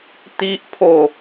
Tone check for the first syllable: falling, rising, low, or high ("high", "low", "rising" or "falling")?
low